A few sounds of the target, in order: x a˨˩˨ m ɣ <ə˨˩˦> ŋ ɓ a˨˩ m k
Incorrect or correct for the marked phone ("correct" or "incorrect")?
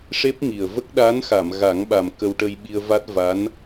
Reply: incorrect